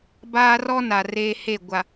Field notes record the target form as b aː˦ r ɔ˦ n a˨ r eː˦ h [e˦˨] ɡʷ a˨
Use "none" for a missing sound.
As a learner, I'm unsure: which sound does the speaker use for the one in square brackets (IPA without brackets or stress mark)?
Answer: e˦˨